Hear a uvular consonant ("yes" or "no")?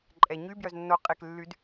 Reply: yes